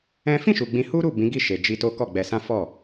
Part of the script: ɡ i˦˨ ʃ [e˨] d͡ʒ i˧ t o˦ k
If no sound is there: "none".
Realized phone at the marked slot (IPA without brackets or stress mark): e˨